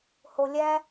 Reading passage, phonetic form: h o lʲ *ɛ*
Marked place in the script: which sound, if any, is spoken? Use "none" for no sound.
æ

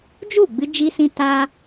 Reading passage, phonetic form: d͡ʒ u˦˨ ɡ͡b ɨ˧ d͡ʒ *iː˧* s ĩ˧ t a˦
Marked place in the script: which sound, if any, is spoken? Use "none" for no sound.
iː˧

